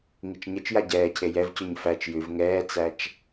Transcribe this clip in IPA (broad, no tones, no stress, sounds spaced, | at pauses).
ŋ i t͡ʃ ɲ ɘ t͡ʃ j a ɟ ɛː cʰ e j ɛ v c ʉ ɲ f æ t͡ʃ j ʉ v ŋ ɛː t͡s æ t͡ʃ